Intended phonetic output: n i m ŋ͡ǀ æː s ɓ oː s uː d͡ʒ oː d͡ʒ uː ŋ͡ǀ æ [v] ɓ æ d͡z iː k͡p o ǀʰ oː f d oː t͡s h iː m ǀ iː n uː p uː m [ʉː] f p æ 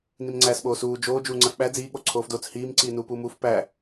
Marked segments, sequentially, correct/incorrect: incorrect, incorrect

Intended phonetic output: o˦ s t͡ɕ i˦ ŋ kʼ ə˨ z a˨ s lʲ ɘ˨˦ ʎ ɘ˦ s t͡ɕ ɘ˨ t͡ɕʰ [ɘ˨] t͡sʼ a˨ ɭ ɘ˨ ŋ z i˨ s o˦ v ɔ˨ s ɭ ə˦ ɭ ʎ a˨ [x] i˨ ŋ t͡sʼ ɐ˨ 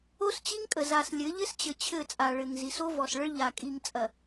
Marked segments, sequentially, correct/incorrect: incorrect, incorrect

